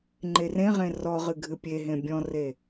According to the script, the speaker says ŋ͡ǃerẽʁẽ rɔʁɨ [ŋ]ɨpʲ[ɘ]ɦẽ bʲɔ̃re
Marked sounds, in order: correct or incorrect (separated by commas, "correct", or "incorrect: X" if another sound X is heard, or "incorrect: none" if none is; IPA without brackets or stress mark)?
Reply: incorrect: ɡʱ, incorrect: e